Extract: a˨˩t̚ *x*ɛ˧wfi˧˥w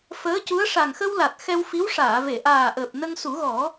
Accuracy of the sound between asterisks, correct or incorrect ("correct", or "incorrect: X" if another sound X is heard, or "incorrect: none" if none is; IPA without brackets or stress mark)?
correct